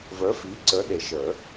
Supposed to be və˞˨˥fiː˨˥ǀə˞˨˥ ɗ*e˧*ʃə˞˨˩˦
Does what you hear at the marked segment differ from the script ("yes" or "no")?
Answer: yes